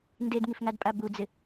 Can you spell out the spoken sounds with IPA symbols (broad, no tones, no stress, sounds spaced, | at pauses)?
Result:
n d e d ŋ i f ŋ a d pʼ a b u d͡z ɪ